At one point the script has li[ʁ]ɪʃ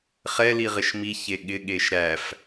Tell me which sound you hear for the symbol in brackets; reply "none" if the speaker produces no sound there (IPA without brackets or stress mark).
ʁ